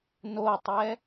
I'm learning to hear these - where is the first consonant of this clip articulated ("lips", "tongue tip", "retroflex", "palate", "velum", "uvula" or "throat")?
tongue tip